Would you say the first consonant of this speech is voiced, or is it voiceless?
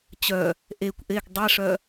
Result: voiceless